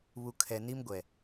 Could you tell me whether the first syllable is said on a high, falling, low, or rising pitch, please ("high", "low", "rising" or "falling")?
low